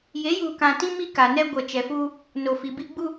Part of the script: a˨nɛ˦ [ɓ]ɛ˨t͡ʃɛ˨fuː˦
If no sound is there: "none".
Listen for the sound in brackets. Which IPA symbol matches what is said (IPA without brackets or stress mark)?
ɡʷ